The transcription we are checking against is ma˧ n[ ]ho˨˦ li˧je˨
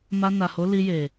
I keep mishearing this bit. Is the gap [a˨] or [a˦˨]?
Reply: a˨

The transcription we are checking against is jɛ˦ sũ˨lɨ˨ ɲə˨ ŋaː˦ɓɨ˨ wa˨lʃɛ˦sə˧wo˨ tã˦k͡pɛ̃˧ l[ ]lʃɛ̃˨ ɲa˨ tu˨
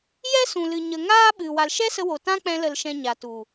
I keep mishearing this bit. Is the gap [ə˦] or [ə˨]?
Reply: ə˨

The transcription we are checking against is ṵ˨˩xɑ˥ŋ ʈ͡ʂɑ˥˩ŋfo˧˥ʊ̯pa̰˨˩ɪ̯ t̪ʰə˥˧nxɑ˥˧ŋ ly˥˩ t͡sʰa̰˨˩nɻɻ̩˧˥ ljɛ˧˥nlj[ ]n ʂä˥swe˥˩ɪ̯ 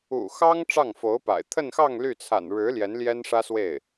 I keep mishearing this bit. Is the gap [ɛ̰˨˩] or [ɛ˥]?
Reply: ɛ˥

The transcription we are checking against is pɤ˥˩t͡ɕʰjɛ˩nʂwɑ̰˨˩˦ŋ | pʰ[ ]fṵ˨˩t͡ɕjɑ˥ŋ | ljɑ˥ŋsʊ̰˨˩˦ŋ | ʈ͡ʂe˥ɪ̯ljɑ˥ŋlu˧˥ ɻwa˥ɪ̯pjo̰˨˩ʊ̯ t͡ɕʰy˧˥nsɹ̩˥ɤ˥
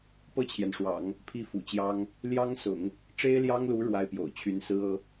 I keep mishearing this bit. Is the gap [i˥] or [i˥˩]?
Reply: i˥˩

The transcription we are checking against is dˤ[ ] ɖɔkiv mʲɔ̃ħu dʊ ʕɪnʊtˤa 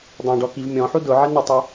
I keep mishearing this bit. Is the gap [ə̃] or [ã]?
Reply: ã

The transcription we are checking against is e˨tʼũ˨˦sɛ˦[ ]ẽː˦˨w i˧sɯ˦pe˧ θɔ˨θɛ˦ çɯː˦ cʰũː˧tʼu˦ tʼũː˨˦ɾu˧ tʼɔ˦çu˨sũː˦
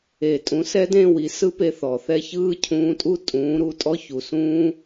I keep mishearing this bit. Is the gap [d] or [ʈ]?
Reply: d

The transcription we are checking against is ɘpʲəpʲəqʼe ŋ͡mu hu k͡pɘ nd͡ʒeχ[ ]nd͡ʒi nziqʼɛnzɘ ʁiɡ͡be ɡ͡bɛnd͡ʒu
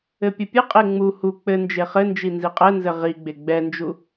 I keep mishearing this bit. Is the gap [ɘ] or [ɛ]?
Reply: ɘ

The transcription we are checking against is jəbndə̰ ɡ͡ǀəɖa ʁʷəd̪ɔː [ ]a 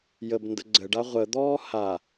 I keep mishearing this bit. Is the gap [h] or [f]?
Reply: h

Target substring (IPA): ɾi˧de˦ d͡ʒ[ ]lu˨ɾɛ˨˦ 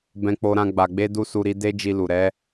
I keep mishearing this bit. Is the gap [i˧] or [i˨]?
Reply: i˧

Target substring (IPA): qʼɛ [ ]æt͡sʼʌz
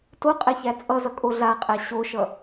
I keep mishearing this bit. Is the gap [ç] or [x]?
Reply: ç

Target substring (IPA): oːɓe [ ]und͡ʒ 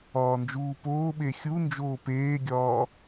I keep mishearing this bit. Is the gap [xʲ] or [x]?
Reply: xʲ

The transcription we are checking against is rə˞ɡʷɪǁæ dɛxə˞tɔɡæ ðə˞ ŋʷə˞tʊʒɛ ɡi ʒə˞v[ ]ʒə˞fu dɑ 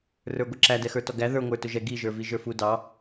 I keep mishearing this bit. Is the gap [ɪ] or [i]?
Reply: i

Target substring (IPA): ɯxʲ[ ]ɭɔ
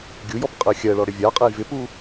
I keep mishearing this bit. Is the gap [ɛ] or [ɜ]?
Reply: ɜ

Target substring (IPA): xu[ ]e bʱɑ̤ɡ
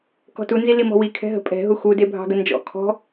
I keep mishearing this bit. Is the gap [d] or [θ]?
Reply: d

